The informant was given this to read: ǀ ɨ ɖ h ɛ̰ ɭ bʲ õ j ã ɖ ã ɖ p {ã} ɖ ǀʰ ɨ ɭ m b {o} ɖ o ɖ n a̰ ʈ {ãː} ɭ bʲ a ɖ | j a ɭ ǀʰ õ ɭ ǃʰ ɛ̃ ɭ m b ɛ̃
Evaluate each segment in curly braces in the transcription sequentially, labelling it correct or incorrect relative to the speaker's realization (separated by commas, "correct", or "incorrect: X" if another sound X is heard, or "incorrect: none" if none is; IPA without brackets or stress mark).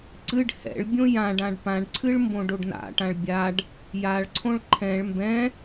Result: correct, incorrect: õ, incorrect: ã